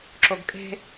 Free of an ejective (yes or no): no